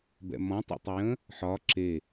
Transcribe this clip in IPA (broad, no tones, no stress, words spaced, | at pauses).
bɛ̰mɔ̃ tˤɛ̰tˤʏjə̃ | ħɒ ǁe